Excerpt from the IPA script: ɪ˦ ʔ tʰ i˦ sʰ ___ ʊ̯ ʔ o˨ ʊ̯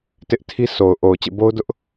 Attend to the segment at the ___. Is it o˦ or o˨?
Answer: o˨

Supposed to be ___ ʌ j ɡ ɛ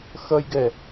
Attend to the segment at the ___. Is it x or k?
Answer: x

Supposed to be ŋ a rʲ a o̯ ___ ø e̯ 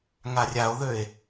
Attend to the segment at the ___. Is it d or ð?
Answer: ð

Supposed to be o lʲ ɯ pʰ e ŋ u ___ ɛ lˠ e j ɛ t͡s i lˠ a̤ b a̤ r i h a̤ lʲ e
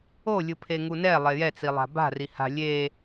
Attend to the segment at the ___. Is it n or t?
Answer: n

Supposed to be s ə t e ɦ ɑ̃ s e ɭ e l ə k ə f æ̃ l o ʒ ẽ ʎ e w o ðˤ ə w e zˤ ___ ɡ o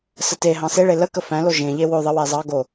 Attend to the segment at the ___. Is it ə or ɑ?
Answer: ɑ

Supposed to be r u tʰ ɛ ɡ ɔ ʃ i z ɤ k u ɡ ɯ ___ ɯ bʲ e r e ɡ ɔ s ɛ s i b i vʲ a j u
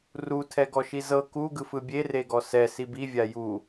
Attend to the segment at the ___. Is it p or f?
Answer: f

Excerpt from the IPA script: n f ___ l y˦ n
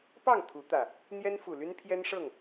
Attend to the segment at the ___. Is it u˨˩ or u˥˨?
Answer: u˨˩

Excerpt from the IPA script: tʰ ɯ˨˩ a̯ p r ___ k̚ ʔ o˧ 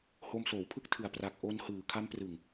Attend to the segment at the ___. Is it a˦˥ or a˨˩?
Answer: a˨˩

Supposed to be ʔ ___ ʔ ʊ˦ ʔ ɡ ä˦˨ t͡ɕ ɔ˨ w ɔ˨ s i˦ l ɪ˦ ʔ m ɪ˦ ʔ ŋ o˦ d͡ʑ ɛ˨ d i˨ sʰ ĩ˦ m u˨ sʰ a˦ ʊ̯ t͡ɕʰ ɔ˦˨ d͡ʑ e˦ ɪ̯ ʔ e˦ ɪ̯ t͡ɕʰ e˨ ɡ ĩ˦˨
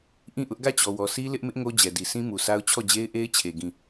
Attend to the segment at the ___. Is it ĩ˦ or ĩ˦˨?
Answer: ĩ˦˨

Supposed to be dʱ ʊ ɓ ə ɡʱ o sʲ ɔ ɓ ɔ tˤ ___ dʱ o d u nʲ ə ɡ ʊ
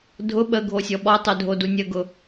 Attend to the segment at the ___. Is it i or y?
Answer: y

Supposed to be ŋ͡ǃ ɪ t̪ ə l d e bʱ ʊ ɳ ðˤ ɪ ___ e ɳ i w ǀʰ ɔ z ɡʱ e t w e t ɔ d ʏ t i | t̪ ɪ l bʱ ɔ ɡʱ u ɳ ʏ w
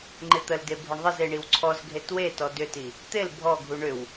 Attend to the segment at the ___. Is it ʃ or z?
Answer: z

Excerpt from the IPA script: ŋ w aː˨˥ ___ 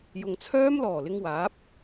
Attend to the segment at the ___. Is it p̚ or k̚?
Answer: p̚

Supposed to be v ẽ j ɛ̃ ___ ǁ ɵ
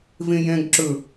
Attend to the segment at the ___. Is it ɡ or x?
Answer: ɡ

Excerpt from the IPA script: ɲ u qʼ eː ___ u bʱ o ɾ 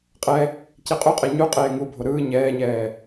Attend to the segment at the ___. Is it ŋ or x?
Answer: ŋ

